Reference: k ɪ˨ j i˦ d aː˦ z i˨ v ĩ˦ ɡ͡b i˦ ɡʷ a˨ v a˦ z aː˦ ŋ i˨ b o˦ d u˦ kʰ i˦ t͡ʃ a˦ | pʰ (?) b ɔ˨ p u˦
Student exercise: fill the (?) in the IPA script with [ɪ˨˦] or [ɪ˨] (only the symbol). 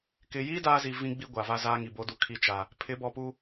ɪ˨˦